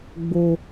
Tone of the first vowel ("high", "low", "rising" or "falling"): high